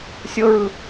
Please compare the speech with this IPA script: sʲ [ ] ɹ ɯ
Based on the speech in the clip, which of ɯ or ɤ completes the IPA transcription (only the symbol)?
ɤ